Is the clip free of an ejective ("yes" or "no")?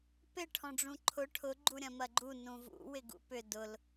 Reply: yes